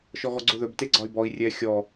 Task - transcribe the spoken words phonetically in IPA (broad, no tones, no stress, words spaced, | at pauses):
ʃɔɣɔɡ͡ǀoðɵb teɡ͡ǀɒy̯bɔi̯ rʲɛ xʲɔ